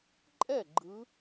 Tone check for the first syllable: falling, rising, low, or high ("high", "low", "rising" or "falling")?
falling